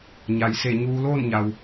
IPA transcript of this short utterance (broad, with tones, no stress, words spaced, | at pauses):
ɲa˩jse˧˩ ɲuː˧loː˥˨nɲa˩w